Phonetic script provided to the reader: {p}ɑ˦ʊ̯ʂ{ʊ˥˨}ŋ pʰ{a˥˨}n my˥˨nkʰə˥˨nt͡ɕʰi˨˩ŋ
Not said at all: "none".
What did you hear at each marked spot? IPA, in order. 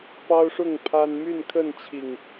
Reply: p, ʊ˥˨, a˦

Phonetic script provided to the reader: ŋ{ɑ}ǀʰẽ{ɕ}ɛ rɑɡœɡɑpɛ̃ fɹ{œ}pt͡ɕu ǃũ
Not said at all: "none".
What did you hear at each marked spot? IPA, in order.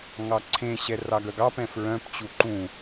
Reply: ɑ, ɕ, œ̃

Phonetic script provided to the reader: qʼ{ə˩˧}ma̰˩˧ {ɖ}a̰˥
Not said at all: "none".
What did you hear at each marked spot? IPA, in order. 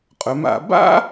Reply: ɵ˩˧, b

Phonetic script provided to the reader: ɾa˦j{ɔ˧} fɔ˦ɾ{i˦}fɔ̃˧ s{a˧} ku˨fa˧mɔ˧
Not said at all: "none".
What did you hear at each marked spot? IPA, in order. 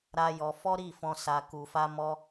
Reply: ɔ˧, i˦˨, a˧

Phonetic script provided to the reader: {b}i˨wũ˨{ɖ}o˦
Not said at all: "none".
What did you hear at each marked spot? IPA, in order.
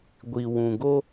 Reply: ɡʷ, ɡ

